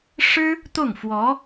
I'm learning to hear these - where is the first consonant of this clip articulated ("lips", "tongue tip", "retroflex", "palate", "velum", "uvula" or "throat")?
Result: retroflex